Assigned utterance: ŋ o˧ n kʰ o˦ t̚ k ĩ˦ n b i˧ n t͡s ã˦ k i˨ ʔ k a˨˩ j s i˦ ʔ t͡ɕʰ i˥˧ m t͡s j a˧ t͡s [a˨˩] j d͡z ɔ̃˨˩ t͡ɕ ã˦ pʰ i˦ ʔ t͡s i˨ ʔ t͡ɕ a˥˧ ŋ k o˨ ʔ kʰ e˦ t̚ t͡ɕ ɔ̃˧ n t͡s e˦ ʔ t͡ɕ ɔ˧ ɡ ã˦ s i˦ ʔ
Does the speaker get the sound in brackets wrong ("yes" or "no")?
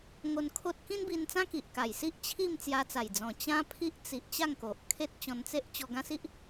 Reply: no